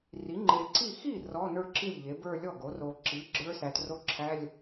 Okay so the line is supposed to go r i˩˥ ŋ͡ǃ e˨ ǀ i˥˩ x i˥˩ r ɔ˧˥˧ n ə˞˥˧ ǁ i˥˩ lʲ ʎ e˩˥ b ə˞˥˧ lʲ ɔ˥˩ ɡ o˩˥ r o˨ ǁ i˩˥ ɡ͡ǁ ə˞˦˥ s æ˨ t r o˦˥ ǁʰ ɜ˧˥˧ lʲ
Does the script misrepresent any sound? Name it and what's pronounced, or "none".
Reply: ɜ˧˥˧ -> æ˧˥˧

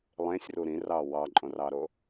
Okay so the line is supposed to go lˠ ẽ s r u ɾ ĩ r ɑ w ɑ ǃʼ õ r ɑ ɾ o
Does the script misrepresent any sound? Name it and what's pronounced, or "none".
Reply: s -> sʲ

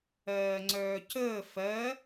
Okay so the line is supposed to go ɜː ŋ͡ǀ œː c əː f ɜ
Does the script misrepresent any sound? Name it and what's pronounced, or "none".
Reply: none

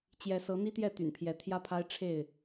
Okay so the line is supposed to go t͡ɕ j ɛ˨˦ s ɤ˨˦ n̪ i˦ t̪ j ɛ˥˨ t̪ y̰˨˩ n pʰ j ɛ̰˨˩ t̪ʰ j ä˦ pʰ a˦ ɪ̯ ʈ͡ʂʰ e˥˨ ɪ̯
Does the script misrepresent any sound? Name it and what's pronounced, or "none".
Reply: ɛ̰˨˩ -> ɛ˨˦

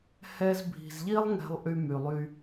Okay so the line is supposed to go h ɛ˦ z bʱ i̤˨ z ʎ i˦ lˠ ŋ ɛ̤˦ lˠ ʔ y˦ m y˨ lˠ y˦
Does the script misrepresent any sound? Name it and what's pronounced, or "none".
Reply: none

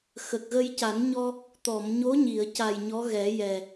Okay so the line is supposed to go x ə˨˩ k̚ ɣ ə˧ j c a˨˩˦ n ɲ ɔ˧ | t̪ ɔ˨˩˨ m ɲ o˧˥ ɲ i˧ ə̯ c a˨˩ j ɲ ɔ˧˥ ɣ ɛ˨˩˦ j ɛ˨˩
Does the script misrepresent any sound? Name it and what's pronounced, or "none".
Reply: i˧ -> i˨˩˨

